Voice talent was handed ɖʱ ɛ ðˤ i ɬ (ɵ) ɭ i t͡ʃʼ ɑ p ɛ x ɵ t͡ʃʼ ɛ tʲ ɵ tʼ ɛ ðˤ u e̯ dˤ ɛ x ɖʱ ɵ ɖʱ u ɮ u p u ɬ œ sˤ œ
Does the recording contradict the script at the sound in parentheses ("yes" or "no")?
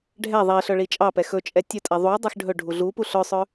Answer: yes